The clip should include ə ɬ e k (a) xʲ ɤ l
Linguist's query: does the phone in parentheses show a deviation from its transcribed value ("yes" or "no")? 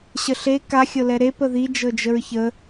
no